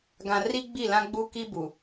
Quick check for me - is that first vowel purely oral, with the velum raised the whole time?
no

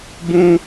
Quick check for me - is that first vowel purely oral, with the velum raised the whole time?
no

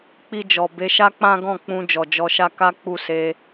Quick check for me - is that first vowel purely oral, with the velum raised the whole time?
yes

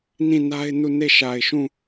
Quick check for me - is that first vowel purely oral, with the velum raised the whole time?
no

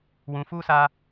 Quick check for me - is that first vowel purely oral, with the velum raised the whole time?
no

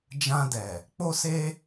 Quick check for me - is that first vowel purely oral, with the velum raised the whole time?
no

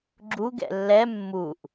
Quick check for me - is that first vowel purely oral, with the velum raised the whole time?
yes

